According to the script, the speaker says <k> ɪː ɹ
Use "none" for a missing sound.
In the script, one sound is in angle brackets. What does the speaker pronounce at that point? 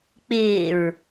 k͡p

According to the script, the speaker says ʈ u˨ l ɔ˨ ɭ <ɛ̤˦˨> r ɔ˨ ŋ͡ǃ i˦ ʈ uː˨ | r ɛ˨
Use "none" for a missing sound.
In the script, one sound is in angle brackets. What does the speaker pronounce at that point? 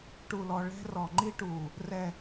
ɛ̤˦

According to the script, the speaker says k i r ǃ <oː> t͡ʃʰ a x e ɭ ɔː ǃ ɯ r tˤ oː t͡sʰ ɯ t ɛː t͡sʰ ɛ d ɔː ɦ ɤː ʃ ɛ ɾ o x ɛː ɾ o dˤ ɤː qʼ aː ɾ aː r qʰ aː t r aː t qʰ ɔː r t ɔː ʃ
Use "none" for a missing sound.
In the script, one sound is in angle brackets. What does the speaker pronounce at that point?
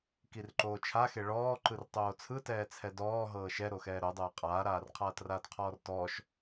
oː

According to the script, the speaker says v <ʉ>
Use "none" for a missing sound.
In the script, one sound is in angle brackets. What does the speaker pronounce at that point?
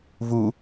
u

